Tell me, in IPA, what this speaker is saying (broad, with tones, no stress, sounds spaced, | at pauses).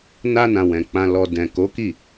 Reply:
n a˧ n ã˨ w ɛ̃˨ k͡p ã˨ l ɔ˨ d ɛ̃˨ k o˨˦ k i˦˨